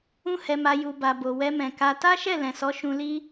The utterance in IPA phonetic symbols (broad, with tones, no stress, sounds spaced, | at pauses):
ũ˦ h ɛ˧ m a˧ j u˨ b a˨ b o˨ w ɛ˧ m ɛ̃˨ k a˧ t a˦ ʃ ɛ˦˨ l ɛ̃˨ s ɔ˨˦ ʃ ũ˧ l i˦